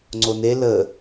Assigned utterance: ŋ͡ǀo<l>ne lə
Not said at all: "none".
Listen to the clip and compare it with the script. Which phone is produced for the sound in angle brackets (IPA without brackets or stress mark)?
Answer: none